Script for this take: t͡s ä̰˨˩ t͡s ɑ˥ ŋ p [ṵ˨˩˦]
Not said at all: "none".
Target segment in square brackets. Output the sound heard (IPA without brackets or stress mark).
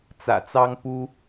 u˥